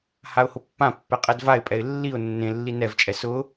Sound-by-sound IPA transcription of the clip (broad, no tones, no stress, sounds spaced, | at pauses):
h a ʊ̯ h ʊ pː ã pː ɛ qʼ ɛ d v a ɪ̯ pʼ ɛ ɪ̯ lː i ʊ̯ nː ẽ lː i n ɛ v t͡ʃʼ ɛ s ʊ